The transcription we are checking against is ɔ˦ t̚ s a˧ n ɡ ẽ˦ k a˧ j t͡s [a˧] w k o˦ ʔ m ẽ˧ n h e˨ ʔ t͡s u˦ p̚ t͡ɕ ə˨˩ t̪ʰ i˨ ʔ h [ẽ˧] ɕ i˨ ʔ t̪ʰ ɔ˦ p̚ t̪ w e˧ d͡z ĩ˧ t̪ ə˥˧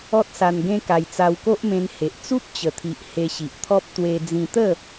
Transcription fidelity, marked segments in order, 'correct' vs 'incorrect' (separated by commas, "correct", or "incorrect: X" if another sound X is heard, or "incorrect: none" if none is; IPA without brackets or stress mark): correct, incorrect: e˧